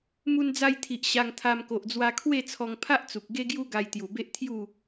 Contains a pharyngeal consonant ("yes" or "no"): no